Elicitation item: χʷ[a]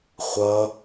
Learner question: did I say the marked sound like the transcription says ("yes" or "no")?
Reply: no